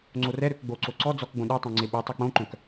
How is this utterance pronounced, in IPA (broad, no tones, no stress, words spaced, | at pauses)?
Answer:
ŋ͡ǀorɛɾøk ɡ͡boǀo ǀɔ d͡zɔkɡ͡bõ ɗɛtˤœ̃ ŋ͡ǀeɓɵtˤœ k͡põǃœ̃k